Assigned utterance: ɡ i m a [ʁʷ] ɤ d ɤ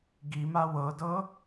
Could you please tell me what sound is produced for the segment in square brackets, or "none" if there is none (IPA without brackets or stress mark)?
w